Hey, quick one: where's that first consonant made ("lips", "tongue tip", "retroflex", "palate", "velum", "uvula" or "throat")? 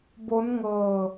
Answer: lips